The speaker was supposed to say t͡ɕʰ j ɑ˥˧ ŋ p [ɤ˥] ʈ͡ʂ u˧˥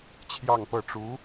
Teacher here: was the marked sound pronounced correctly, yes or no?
no